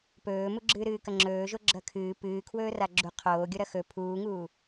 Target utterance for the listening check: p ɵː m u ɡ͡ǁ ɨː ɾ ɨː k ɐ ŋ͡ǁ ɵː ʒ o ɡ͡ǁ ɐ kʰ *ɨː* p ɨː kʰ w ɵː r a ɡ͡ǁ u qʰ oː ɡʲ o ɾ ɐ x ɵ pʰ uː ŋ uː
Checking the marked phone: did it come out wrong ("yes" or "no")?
no